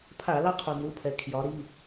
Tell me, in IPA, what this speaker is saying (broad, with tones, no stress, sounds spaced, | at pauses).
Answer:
pʰ a˧˩˧ l ɑ˦ qʰ u˩ n̪ u˩˧˩ pʰ ɛ˩ kʰ j ɒ˩˧ ɾ i˩˧˩